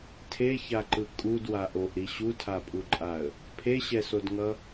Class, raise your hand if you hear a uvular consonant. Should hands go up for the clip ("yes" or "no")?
no